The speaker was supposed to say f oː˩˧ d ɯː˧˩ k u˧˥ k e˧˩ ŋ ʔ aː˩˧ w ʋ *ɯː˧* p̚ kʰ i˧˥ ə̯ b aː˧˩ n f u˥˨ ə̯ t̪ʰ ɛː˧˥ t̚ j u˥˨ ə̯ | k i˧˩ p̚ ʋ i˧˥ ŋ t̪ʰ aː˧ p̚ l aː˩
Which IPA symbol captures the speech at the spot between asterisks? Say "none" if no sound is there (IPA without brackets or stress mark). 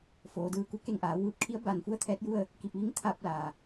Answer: ɯː˧